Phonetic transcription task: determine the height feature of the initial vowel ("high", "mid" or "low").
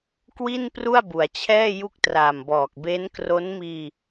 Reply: high